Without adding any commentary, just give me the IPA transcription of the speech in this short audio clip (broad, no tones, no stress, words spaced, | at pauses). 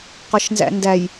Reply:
qɒʃnzæ̰ndæj